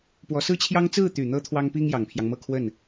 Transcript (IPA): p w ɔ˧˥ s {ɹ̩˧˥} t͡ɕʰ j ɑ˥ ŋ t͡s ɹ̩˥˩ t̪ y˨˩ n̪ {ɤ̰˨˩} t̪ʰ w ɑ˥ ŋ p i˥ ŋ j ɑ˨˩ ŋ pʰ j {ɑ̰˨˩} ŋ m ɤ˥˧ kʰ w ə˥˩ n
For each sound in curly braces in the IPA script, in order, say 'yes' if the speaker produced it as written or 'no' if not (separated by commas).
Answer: no, no, no